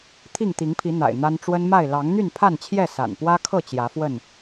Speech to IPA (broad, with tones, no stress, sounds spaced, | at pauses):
t̪ʰ i˥˨ ŋ t̪ i˨˦ ŋ pʰ i˨˦ n̪ a̰˨˩ ɪ̯ n̪ a˦ n ʈ͡ʂ w ə˦ n m a˥˨ ɪ̯ l ɑ˨˦ ŋ n̪ y˥˨ n pʰ a˥˨ n t͡ɕʰ j ɛ˥˨ s a̰˨˩ n p w ä˦ kʰ ɤ˥˨ t͡ɕ j ä˨˦ f w ə˥˨ n